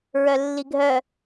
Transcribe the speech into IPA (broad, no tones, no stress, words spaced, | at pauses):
ɹœlːiɡʱœ